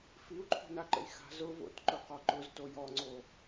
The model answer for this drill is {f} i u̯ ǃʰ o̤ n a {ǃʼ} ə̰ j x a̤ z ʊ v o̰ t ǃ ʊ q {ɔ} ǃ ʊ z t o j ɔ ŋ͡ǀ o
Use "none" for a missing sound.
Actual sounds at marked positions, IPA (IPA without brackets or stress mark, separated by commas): f, ǃ, ɔ